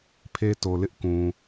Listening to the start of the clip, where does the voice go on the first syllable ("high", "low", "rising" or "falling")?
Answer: high